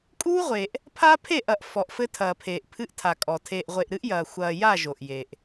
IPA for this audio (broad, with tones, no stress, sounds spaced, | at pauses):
kʼ uː˦ ʁʷ e˨ ʔ | pʰ a˦ pʰ e˦˨ ʔ ɐ˨ ʔ f ɔ˨ ʔ f ɘ˦ tʰ ɐː˨ pʰ eː˨ ʔ pʰ ɨ˦ ʔ tʰ a˨ kʼ ɔ˨ tʰ eː˨ ʔ ʁʷ e˨ ʔ ɾ ɨ˦ ʔ j ɐː˨ xʷ ɐː˨ j a˦˨ ʒ o˨ ʔ j e˨ ʔ